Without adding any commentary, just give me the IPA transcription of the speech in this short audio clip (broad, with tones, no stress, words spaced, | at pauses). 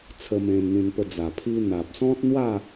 t͡sʰə˧mẽ˧nn̪ĩ˧npə˧ d͡za˨˩pʰi˧ n̪a˨p̚sɔ̃˦t̚n̪wa˥˧